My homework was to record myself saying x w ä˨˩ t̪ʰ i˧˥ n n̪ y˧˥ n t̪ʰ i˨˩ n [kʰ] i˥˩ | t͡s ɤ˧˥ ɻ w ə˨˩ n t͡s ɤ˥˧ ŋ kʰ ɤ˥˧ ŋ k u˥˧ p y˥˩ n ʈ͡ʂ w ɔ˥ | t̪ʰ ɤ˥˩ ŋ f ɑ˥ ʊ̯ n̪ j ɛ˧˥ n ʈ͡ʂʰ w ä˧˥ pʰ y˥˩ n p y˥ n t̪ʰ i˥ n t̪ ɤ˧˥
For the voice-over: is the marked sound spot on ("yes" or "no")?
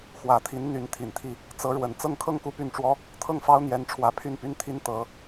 no